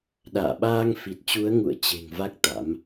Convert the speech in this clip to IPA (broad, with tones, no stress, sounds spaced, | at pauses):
ɗ a̰ː˧˨ ɓ aː˧ ŋ f i˨˩ t̚ t͡ɕ u˨˦ ə̯ ŋ ṵ˧˨ ə̯ t͡ɕ e̤˨˩ ŋ v a˦˥ k̚ t̪ a̰˧˥ m